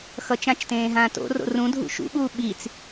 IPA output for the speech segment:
x ʌ t͡ʃ ã t͡ʃ t ẽː ɦ ãː t o̰ r o̰ r ũ dʱ ṵ ʃ ṵ ɓ uː ɓ i t͡s

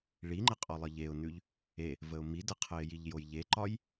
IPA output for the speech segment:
ɭ i ŋ͡ǃ ə qʼ ɔ lˠ ə ʎ e ʊ̯ n ʉ ʎ | e | v ə ʊ̯ m i d ə qʰ ə ɪ̯ j i ʎ j o j ʎ e ǃ ɒ j

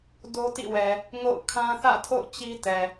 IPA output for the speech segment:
d o˦ t ḭ˦˨ w ɛ˨ | ŋ o̰˦˨ ʊ̯ kʰ ã˦ θ ä̰˦˨ tʰ o̰˦˨ ʊ̯ t͡ɕ i˦ t ɛ˨

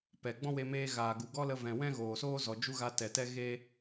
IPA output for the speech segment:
p ɛ˨ ɡ͡b ɔ̃˦ w e˧ m eː˧ ɣ aː˨ ɡ u˨ ɡ ɔ˦ l ə˧ v ɛ̃˨ w ɛ̃˦ ɣ oː˨ s oː˦ z ɔ˨ d͡ʒ u˦ ɣ a˧ t ɛ˨ t ɛ˦ ɣ e˦

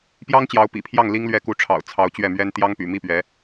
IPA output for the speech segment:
p j ɑ˥ ŋ t͡ɕ j ɑ˧˥ ʊ̯ p ḭ˨˩ pʰ j ɑ˥˩ ŋ l i˥ ŋ l ɥ ɛ˥˩ k u˧˥ ʈ͡ʂʰ ɑ̰˨˩ ʊ̯ t͡sʰ ɑ˧˥ ʊ̯ t͡ɕ ɥ ɛ˥˩ m ɥ ɛ˥ n t̪ j ɑ˥ ŋ p y̰˨˩ m i˥˩ p ɥ ɛ˧˥

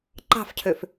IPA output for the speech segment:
ǃ ɑ̤ f cʰ ø f

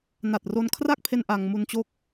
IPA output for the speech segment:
n a˨˩ t̚ r o˧ n kʰ r a˥˩ k̚ pʰ e˧ n ʔ a˧ ŋ m u˧ n t͡ɕ o˦˥ k̚

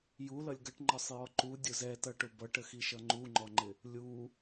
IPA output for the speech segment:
j u l ʌ lʲ ɡ ʌ ʈ ŋ͡ǃ ɒ sˤ j ɔ ǃ u dʲ ʊ z ɛ t ʌ ʈ ʊ b ʌ ʈ ə x i ʃ ʌ ŋ͡ǃ u ŋ͡ǃ ɔ ŋ͡ǃ ɪ | lʲ u

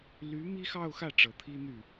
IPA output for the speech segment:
l y˧˥ m i˥ x ɑ˥˧ ʊ̯ x ä˥˩ ʈ͡ʂ ɤ˨˩ t̪ʰ i˥ n̪ y˥˩

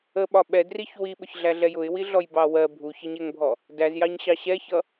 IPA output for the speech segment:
ə ɓ ɒ ɓ ɛ d r i ç w i ɓ ʊ ç ɮ æ ɮ ɛ j ʊ ɪ̯ w i ɮ ɔ j b ɑ w ɜ bʱ u ç ʌ ɲ ɛ ŋ bʱ ɔ | d æ z j ɑ ɲ ɕ ɑ ɕ ɛ ç ʌ

